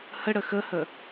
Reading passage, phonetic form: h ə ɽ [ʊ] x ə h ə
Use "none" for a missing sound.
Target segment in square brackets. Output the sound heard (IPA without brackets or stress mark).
ə